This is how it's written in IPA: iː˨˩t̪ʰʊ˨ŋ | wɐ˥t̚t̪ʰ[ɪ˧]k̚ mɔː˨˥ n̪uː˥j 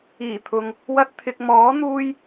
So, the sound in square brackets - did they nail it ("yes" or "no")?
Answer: yes